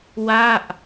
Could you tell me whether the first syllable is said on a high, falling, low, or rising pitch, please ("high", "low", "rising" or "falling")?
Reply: falling